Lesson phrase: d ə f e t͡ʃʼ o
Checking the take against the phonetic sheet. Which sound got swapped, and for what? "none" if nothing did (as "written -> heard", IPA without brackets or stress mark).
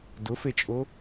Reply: ə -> ʊ